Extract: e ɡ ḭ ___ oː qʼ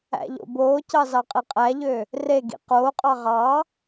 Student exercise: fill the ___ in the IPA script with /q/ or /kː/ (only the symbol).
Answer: q